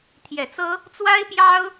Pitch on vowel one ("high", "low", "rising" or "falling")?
low